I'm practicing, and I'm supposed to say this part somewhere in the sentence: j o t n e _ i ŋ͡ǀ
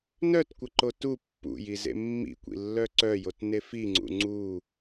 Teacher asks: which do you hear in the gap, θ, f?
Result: f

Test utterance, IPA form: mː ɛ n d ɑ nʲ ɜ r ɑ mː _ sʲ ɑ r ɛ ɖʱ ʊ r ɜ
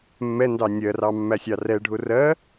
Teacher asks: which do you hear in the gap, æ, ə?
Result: æ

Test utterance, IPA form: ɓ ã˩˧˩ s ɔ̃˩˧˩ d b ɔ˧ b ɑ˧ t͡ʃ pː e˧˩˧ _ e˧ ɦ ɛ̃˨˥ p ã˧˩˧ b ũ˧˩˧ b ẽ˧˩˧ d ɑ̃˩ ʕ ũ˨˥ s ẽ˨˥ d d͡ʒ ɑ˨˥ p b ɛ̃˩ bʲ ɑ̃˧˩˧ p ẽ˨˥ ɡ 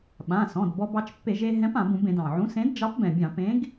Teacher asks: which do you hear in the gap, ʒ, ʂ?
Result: ʒ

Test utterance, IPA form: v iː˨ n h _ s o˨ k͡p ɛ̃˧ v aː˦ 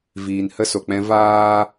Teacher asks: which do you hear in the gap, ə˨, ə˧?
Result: ə˧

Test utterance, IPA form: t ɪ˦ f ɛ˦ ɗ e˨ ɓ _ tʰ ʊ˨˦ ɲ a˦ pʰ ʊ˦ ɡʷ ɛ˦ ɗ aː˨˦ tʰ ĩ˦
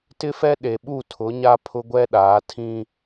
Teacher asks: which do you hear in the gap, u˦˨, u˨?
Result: u˦˨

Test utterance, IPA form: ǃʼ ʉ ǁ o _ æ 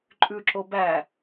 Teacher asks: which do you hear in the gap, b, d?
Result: b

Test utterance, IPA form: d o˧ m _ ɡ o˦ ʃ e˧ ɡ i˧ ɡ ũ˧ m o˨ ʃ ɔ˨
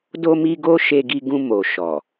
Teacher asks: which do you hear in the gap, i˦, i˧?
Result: i˧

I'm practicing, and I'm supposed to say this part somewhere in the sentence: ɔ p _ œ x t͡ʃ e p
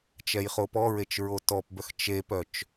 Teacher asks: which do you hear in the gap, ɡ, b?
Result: b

